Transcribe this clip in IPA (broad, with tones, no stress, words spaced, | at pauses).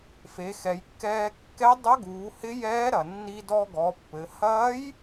fe˩˧xɛ˩˧jkːɛː˧ kːɛ˧˥dˤɐ˧˥ɡuː˩˧ hɪ˧˥jɛː˧˥ɾɐ˩ nːi˧dɔ˧ɡɔ˩˧ pːɘ˩˧ hɐː˧˥j